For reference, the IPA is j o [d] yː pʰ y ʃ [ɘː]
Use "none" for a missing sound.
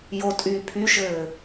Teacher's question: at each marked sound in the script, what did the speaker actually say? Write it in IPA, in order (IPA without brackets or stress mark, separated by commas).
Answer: tʼ, ɘː